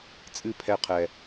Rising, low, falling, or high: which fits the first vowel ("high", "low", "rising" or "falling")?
falling